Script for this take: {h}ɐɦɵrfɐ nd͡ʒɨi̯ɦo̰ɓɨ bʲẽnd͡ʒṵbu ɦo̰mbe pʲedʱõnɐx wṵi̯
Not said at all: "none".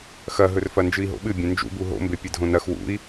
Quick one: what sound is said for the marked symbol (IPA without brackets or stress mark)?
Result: x